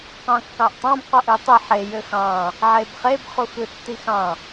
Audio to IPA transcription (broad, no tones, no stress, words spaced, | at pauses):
qɑ̃kːɑʔtˤɑ̃b qoʔøtˤe ħe jøxɑ̃ | ʕebχeb χuxɯtːixɑ̃